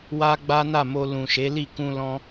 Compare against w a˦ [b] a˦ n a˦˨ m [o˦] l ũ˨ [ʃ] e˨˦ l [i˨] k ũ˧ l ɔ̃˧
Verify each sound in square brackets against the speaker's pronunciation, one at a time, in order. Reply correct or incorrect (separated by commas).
incorrect, incorrect, correct, incorrect